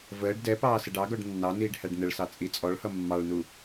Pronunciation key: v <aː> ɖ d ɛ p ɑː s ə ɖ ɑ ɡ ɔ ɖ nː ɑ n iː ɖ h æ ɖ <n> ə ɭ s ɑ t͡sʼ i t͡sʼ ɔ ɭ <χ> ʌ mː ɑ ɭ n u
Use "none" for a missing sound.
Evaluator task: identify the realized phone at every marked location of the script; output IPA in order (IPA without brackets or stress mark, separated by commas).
əː, n, h